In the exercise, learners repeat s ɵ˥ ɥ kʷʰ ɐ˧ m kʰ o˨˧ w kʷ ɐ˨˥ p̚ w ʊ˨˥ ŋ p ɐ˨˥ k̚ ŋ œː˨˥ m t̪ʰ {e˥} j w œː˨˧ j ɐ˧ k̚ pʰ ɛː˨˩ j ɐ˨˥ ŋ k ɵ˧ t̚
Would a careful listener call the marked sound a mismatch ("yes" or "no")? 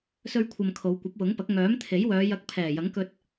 yes